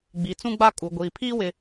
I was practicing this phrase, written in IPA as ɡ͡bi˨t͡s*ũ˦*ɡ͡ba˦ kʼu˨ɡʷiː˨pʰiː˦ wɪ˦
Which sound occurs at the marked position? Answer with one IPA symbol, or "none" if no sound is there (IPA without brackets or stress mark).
ũ˦